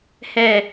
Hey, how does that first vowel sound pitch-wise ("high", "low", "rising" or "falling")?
low